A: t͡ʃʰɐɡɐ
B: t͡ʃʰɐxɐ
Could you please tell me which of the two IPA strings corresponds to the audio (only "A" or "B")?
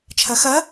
B